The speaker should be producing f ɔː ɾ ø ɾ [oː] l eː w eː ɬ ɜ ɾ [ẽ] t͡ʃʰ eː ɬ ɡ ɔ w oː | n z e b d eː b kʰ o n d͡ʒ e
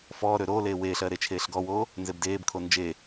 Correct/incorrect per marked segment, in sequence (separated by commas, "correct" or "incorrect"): correct, incorrect